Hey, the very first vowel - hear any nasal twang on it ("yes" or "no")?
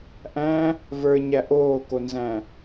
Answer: yes